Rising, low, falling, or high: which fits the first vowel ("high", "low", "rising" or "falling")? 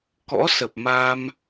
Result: rising